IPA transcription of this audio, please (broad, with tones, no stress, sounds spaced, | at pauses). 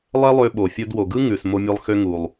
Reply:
lˠ ɛ˦ lˠ ø˧ ɓ o˨ fʲ o˧ d w o˨ ɡ ɯ˦ ŋ ʉ˨ s m o˦ mʲ ɯ˦ lˠ x ø˦ ŋ u˨ lˠ